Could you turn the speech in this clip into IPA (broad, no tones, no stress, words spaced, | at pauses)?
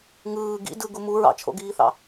ŋɯː ɡḭ dɯ ɡumu ɹɑ̰t͡ʃʰo̰ɡiːθɑ̰